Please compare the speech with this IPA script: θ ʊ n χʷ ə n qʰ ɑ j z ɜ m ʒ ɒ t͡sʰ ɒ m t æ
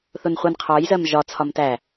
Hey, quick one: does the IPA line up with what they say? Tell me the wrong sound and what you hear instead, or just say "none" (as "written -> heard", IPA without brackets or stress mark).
none